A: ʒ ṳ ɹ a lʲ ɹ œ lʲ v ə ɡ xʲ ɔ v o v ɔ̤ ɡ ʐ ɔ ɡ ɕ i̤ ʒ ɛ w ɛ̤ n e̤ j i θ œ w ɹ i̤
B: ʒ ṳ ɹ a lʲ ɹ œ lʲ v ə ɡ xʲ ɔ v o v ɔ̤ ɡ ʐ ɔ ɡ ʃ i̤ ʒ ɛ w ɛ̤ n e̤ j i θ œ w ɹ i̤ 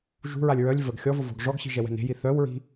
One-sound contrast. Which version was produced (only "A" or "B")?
A